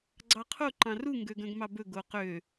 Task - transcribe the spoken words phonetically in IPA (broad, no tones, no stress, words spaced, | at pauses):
ɡ͡ǀɑqʰo ǃɑ̃ru ŋɡøɡœ̃ɡmɑbɵ ɡoqø